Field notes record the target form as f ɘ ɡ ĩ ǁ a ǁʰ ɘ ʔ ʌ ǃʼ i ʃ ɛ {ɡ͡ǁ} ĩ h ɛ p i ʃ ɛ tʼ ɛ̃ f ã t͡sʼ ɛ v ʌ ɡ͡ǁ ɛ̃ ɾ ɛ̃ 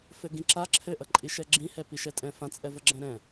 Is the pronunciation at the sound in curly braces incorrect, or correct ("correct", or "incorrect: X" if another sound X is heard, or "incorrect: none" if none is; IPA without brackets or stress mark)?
correct